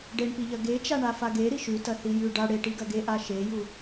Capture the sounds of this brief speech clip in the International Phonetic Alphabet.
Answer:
ɖ e ɳ p i ʎ ɐ ɡ e t͡ʃ a ɳ a f a ɡ e ɾ i ʃ ʉ t ɐ θ i j ʉ ɖ a ɽ e ʈ i ɡ ɐ ɡ e ʔ a ʃ e j u

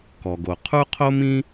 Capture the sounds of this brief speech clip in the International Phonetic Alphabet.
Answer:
k ɔ˩ ɡ o˩ qʰ u˥ qʰ o˥ m ĩ˥

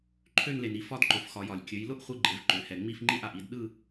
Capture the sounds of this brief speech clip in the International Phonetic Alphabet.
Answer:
ǃʰ ø˥˧ n l e˩ n i˥˧ f ɒ˥˧ d ǃ ʊ˩˧ f x ɒ˩˧ j ɒ˩ lʲ kʲ ø˩˧ j l ʊ˥˧ ʔ χʷ ɯ˥˧ ɡ͡ǃ e˩˧ v ǃ ø˩˧ h ɛ˩ ŋ͡m i˥˧ f ŋ͡ǃ i˥˧ ʔ a˩ ʔ i˥˧ d ɗ ɯ˥˧

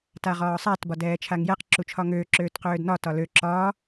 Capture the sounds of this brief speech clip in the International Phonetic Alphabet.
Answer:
t a ʁ ɒː sˤ a t b ɒ d ɛː t͡ʃʰ a ŋ j ɛ q ǁ u t͡ʃʰ ɒ ŋ øː ǁ øː t q øː d n ɒ t ɒ l ø ǁ ɒː

